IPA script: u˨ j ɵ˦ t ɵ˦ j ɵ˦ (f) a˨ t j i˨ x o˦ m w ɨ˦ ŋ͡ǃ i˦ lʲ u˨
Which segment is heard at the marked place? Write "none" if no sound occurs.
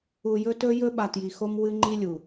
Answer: ɓ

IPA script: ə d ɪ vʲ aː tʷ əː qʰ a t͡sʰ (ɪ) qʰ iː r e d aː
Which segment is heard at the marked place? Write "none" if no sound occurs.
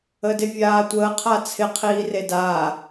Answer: ɪ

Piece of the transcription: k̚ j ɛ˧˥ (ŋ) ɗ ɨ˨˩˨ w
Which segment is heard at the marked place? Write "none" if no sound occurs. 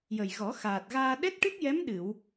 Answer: m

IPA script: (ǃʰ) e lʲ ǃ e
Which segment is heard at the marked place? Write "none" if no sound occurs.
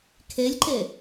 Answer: kʰ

